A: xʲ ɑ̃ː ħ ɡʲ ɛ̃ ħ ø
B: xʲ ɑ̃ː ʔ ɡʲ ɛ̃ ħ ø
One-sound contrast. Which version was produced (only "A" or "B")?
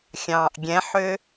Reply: B